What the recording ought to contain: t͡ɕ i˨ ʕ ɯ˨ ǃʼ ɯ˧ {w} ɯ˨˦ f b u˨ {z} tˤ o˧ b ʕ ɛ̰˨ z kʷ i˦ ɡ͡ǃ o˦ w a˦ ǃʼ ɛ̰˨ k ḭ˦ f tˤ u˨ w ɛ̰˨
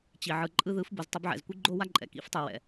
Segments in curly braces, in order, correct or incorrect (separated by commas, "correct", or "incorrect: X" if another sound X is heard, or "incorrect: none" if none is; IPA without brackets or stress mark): incorrect: ð, correct